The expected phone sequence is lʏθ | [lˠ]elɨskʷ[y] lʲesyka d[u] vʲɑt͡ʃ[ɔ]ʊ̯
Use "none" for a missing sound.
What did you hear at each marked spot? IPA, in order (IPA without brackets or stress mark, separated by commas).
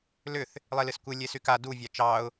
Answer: lˠ, ɨ, u, ɑ